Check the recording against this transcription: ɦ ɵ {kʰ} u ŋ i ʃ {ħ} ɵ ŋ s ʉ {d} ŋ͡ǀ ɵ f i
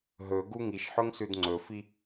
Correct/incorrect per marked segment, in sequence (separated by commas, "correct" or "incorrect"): incorrect, correct, correct